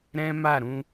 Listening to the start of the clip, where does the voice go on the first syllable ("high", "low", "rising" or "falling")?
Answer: high